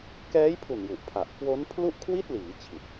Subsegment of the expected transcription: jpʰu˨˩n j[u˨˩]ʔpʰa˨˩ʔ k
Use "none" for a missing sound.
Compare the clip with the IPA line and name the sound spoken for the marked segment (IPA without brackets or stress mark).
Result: u˨˩